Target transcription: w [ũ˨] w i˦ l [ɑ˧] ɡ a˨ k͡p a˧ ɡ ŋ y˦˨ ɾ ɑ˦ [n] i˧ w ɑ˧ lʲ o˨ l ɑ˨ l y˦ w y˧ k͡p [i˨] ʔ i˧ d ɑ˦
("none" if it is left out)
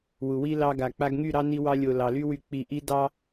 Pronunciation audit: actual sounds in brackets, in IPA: u˨, ɑ˧, n, i˨

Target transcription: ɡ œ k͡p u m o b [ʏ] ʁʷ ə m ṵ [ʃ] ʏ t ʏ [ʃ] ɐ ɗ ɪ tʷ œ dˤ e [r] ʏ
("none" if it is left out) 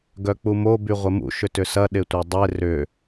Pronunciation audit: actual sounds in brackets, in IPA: y, ʃ, s, r

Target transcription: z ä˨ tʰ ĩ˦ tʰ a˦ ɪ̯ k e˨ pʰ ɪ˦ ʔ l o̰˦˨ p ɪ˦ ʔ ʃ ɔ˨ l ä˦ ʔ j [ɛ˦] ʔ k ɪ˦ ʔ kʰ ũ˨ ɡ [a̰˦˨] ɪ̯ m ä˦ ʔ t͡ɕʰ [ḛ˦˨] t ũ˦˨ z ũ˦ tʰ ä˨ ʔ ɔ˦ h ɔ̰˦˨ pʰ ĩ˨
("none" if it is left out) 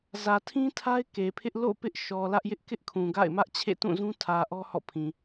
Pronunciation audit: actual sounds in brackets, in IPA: ɪ˦, a̰˦˨, ḛ˦˨

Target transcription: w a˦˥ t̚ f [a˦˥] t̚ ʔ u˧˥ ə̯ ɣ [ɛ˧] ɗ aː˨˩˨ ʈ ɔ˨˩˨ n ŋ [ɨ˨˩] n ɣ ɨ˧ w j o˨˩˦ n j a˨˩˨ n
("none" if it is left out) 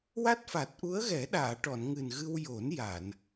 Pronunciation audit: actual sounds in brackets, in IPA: a˨˩, ɛ˨˩˦, ɨ˨˩

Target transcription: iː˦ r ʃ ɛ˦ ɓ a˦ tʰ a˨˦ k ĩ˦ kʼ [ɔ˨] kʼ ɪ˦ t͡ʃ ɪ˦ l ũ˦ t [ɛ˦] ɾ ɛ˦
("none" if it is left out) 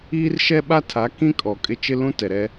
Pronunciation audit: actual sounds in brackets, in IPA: ɔ˨, ɛ˨

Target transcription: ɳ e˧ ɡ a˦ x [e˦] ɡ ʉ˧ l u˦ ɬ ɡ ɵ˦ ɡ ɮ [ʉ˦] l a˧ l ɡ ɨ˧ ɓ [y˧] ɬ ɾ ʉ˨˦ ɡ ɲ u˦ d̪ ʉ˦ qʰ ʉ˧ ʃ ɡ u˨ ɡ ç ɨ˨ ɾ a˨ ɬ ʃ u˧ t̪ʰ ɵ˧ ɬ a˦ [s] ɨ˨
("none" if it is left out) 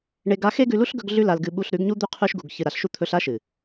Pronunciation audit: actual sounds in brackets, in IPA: e˦, ʉ˦, u˧, ʃ

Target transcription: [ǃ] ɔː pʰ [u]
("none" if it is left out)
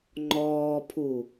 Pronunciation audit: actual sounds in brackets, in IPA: ŋ͡ǃ, u

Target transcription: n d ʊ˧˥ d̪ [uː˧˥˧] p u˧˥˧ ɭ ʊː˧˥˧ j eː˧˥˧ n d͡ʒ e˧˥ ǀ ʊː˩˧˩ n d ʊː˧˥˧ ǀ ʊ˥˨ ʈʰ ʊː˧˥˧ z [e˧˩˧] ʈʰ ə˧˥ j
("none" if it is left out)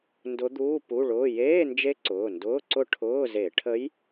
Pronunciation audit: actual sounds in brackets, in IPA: uː˧˥˧, e˧˩˧

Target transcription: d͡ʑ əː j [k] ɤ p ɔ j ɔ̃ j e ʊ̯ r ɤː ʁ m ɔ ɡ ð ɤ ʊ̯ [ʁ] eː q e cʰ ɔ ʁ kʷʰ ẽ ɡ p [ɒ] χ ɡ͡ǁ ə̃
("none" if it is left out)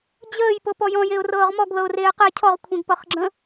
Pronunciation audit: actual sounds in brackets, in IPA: p, r, ʌ

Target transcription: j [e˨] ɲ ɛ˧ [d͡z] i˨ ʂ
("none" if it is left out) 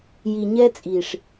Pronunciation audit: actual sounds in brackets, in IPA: i˨, t͡sʼ

